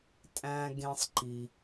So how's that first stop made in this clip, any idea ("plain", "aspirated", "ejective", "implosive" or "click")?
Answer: ejective